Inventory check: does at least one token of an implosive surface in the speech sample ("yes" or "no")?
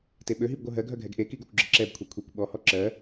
yes